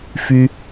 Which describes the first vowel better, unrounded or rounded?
rounded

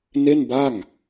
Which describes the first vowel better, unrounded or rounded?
unrounded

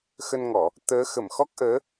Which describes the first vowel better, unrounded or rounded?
unrounded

